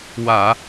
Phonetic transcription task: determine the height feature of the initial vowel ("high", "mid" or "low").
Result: low